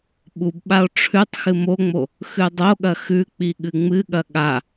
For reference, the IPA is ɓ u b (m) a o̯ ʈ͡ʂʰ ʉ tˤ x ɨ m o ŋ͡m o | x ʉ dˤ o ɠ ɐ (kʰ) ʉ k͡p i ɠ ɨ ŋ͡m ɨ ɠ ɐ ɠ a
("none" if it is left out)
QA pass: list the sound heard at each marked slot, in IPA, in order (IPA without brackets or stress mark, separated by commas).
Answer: ɓ, x